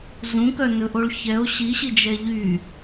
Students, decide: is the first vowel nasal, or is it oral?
nasal